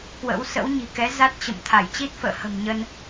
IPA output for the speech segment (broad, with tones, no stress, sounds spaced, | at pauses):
k w ə̰˧˥ w s ə̰˧˥ w ɲ i̤˨˩ k ɛ˨˦ z a˦˥ t̚ t͡ɕ ə̰˧˨ m t̪ʰ a˧˩ j t͡ɕ i˦˥ t̚ f ə̰ː˧˨ h ə̤˨˩ m ɲ ə˧ n